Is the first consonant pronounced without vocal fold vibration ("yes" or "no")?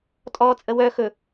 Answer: yes